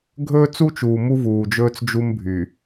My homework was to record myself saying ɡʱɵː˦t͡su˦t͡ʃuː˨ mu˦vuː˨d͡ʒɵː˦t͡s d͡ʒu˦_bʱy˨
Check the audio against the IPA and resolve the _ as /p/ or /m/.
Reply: m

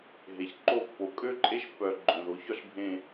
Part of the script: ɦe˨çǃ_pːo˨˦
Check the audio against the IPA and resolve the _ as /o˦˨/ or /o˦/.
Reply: o˦˨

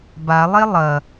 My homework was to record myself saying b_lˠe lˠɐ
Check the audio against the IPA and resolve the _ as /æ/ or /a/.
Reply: a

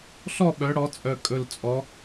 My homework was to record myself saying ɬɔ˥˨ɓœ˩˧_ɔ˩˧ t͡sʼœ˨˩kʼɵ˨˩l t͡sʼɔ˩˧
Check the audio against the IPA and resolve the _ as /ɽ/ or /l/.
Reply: ɽ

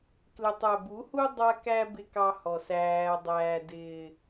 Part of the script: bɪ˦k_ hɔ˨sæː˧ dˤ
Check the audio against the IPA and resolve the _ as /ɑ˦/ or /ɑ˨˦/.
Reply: ɑ˦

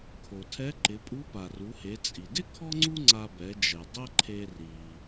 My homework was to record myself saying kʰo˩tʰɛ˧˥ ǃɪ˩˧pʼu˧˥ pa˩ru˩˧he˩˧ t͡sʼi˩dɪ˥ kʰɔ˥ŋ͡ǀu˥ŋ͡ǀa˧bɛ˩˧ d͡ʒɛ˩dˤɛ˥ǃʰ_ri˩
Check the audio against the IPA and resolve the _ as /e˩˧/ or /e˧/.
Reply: e˧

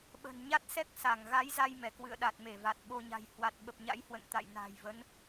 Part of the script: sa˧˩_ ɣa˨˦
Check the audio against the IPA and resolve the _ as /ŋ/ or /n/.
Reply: ŋ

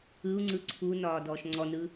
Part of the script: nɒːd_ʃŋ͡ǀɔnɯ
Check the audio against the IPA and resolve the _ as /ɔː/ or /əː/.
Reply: ɔː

